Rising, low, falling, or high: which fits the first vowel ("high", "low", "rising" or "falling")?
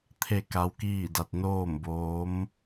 falling